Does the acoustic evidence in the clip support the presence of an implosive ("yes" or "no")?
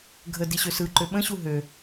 yes